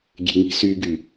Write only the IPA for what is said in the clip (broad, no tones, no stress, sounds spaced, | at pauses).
ɡʲ e̤ ŋ i̤ s y ɡ y